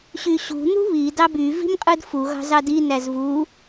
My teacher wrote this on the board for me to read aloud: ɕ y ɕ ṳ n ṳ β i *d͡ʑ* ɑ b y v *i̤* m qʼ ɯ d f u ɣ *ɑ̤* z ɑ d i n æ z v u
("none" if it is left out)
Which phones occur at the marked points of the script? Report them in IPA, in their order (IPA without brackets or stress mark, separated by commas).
d, i̤, ɑ̤